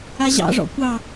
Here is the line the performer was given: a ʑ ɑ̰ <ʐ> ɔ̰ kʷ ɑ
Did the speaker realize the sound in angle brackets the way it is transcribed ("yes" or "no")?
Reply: yes